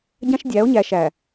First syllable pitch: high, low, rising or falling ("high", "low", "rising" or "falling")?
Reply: high